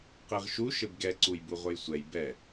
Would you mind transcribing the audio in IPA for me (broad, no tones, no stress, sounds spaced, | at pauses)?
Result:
q i ʁ ʃ u ʃ ɘ b ɡ ɛ ǀ u j b u ʁʷ ɘ j sʷ ɛ j b ɛ